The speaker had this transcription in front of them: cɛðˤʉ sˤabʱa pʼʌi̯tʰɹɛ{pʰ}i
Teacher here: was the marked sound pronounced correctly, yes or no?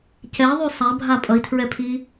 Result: yes